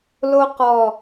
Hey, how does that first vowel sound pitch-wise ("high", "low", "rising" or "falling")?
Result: high